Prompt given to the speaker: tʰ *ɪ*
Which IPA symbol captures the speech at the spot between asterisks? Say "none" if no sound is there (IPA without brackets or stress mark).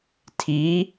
i